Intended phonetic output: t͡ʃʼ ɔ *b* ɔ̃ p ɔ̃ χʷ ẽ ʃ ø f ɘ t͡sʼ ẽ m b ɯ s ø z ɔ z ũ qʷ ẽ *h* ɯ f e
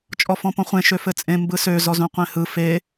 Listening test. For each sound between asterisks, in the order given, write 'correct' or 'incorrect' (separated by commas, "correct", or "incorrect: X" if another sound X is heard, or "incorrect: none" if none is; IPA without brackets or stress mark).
incorrect: f, correct